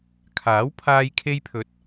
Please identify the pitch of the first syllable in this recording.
rising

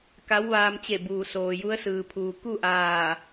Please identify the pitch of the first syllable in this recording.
rising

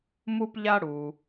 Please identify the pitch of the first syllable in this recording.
high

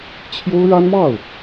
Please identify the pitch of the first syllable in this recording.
high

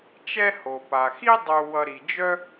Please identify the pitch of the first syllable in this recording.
high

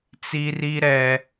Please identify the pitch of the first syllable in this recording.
high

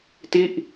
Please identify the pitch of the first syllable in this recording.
falling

